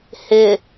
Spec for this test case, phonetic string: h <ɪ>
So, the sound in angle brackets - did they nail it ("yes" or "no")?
yes